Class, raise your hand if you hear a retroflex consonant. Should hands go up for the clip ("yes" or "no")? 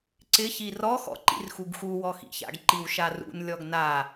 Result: no